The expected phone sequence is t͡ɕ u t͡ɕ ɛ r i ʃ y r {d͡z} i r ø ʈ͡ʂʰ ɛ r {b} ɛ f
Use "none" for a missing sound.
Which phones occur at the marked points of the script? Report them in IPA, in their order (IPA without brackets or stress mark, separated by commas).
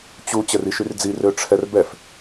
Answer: d͡z, b